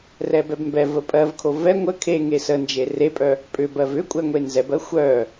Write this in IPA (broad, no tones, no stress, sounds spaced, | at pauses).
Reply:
r ɛ b ɛ b m b ɛ v ə pʼ ɜ v kʰ o v ɛ ŋʷ ə kʰ e ŋ e s ə n d͡ʒ e r e pʼ œ | pʼ ʏ b ɜ v ʏ kʷʼ ɛ ŋʷ e n z ɛ b ɜ xʷ œ